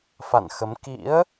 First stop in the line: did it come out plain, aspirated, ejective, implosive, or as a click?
plain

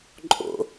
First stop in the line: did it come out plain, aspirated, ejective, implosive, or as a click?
click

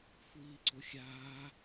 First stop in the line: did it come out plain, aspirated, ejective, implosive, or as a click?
click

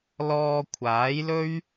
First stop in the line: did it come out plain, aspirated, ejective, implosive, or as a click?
aspirated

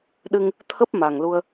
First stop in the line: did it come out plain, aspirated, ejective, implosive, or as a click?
implosive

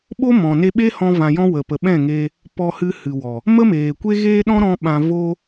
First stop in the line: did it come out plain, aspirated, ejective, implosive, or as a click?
implosive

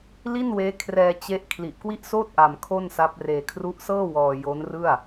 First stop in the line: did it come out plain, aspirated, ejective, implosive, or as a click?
aspirated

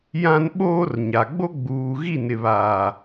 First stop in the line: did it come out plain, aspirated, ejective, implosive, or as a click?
implosive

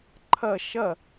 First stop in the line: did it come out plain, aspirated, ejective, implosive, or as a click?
click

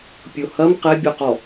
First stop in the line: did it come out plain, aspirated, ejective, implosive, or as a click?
plain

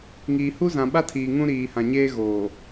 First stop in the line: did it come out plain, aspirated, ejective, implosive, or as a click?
implosive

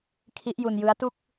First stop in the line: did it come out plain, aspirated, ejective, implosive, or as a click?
aspirated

